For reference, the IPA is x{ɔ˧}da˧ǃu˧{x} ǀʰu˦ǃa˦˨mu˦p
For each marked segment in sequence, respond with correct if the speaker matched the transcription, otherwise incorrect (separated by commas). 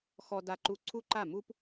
correct, incorrect